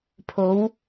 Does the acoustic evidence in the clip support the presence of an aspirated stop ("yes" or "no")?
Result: yes